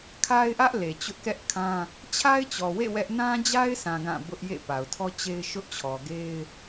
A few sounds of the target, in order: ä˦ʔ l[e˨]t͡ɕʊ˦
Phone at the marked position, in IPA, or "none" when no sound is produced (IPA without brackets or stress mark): e˨